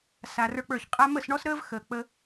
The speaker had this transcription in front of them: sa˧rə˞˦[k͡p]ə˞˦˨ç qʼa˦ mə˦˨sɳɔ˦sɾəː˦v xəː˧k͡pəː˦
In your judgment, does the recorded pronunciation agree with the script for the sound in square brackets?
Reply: yes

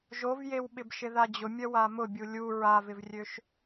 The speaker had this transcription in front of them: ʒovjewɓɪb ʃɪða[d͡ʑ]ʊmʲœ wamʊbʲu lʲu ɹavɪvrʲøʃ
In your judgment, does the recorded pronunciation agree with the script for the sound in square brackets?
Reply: yes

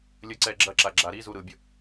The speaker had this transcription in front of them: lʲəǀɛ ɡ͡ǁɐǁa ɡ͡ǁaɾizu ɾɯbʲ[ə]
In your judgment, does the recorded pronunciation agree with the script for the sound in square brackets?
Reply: yes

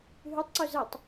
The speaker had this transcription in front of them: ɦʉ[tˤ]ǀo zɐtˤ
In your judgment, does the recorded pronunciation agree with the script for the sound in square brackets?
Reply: yes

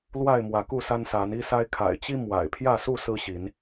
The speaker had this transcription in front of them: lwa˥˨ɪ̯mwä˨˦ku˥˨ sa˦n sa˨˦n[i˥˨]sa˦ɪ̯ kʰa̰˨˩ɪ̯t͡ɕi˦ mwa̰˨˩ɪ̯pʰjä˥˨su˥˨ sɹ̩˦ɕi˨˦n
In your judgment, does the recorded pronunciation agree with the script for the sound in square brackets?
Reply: no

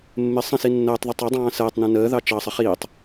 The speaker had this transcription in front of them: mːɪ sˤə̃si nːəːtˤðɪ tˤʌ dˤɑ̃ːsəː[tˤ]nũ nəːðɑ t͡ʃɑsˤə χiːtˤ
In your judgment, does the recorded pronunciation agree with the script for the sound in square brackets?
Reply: yes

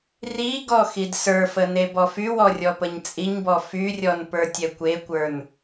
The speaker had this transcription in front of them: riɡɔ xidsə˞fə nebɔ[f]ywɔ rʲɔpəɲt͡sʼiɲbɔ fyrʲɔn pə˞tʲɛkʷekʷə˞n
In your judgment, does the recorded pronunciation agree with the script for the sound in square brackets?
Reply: yes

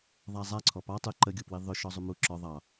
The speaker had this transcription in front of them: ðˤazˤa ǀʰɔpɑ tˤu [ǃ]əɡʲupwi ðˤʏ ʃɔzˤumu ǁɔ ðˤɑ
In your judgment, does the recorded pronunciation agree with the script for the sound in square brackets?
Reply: yes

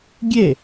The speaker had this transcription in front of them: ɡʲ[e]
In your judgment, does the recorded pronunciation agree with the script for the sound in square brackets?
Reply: yes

